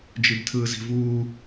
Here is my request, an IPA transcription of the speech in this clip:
d͡ʒ i b tʰ ɯː z i̤ v uː

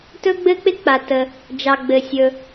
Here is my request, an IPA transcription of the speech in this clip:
t ɵ˥ ɡ͡b ɘ˥ k͡p ɪ˥ k͡p a˩ t ə˩ | d͡ʒ ɑ˩ ɡ͡b ɘ˩ sʲ ɵ˩

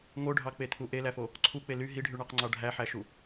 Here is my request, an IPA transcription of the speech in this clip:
ŋ o ɖʱ ɑ k͡p e t̪ʰ u ʔ e l æ f o | ǀʰ u k͡p e l y ɦ i ɖʱ y ɳ ɑ q ŋ͡ǀ ɑ ɖʱ æ ħ æ ʃ u

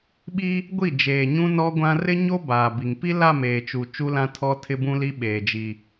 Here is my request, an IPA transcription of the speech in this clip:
ɓ i˦ | ɡʷ i˦˨ d͡ʒ eː˨ ɲ ũ˦ n ɔ˦ ɡʷ ã˦ r ɪ˦ ɲ o˦ b aː˨ b i˨ ŋ p i˦ l a˦˨ m eː˨ t͡ʃ u˨ t͡ʃ u˦ l ã˦ tʰ ɔ˦ tʰ ɪ˦ b ũ˦ l i˦ ɓ eː˨ d͡ʒ i˨

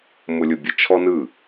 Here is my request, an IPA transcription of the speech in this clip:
m ʊ lʲ ʊ bʲ ə t͡ʃʰ ɔ n ɯ

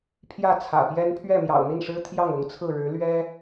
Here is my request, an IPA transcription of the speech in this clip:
pʰ j ä˥˩ t͡sʰ ä̰˨˩ p j ɛ˥ n pʰ ɥ ɛ˥˩ m j ɑ̰˨˩ ʊ̯ n̪ i˥˩ n ʂ ɻ̩˥ t̪ʰ j ɑ˥˩ ŋ ʊ˧˥ ŋ t͡sʰ ɹ̩˥˩ ɻ ɻ̩˧˥ l ɥ ɛ˥

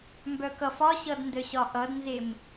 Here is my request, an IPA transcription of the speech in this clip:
m b œ k ʌ f ɒ ɕ ʌ d n d œ ɕ ɒ ʔ ʌ d n z e m

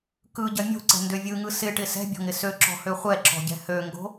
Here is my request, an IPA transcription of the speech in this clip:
k ɯ ɟ ɐ mʲ o̤ ǀ ɛ̤ n d ø vʲ ɯ ŋ ɯ s ɪ ʈ ɪ s ɛ̤ bʲ ɔ̤ ŋ ɪ s ø ǁ ɔ̤ h ø χʷ ɛ ǁ ɔ̤ ɟ ɛ̤ h ø ŋ ɡ o̤

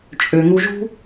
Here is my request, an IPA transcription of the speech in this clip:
t͡ʃʼ ø˩ ŋ u˨ ʒ ṳ˦

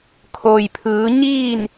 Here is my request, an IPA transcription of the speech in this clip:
kʰ oː˩ j pʰ ɯː˩˧ ɲ iː˥˨ n

